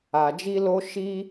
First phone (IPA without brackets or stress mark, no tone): a